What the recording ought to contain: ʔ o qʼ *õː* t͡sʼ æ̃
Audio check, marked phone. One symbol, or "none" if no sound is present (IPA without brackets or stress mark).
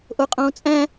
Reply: õː